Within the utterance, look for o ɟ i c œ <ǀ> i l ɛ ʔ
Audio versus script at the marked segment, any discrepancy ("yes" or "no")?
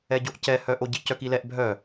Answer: yes